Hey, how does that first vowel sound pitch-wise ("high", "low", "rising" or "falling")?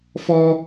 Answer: high